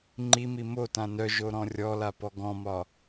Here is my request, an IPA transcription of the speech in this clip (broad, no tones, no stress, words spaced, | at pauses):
ŋ͡ǃimi motã nœʒoɾɔ̃ rʲɔlapɔ ɡɔ̃mɒ